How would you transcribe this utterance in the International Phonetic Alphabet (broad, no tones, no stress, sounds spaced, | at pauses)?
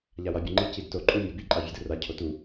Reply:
ʎ a w a bʲ ʌ ŋ͡ǃ i c i d t o ǃʼ u mʲ a b i ǃʼ a vʲ o d ɯ r a cʰ o t u